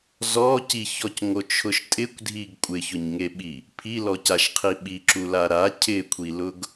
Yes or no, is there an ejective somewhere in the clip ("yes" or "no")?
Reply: yes